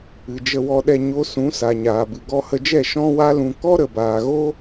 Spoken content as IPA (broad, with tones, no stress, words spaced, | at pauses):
ɨ˨d͡ʒə˧wɔ˧ɗɛ˧ ɲo˦ sũ˨˦sa˨ɲaː˨bɨ˨ ɡɔ˧hə˧d͡ʒɛ˦˨ ʃɔ̃˦wa˦lũ˧ kɔ˦ɾə˨baː˨ɣo˦